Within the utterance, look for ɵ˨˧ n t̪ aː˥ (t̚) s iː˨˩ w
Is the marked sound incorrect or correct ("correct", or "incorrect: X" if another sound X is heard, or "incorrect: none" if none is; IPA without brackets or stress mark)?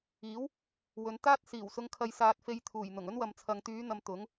correct